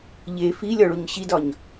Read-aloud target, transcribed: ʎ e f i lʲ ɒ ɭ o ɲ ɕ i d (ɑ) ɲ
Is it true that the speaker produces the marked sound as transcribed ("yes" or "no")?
no